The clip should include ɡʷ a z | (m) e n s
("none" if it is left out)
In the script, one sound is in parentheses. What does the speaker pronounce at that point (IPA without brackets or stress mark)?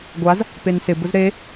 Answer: p